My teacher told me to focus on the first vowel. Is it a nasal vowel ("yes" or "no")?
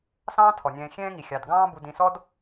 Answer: yes